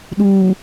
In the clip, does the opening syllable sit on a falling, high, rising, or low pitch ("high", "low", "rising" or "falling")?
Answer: low